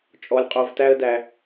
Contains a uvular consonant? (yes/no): yes